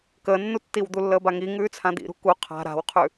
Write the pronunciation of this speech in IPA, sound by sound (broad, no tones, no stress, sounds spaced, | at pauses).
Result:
k əː nː u tː i w d̪ u lː əː b a ŋ i ŋ ʉː t͡sʰ ã d̪ ḭ ɾ ṳ k u qʰ a̤ ɾ a̤ w qʰ ʉ